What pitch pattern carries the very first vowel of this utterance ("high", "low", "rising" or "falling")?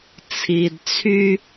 low